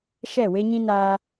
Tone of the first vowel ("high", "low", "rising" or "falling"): falling